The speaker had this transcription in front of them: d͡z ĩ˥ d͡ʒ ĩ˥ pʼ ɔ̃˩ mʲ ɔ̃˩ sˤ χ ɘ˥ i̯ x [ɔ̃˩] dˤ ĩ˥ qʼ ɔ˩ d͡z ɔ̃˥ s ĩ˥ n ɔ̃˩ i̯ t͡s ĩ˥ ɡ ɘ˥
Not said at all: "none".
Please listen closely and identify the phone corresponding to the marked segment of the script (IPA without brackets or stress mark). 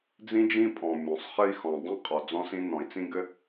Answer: ɔ̃˩